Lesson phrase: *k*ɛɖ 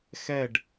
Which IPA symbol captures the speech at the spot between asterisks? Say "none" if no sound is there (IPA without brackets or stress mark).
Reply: x